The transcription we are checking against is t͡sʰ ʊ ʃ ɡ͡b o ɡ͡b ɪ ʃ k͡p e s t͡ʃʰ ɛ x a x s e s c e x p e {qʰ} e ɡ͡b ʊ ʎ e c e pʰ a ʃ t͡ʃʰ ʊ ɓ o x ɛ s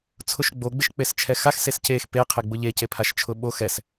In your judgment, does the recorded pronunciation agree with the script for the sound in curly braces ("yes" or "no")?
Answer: yes